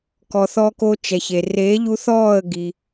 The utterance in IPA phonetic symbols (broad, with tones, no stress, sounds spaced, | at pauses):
k ɔ˨ θ ɔ˧ k o˧ t͡ʃ ɛ˨ ç e˨ r e˨˦ ʎ u˧ θ ɔː˦˨ ə̯ ɡ i˧